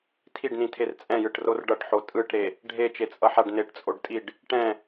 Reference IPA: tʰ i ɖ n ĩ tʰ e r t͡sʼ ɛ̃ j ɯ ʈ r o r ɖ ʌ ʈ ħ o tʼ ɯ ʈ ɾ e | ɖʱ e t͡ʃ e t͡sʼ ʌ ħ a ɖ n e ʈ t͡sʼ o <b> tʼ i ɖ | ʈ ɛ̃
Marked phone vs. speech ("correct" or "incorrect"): incorrect